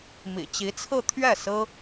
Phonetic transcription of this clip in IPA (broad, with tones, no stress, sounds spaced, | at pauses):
m ḭ˨˩ t͡ɕ i˧˥ t͡sʰ ɹ̩˥˧ t̪ʰ ɥ ɛ˥˩ s ɹ̩˥